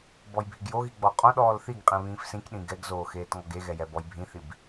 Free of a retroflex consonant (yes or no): yes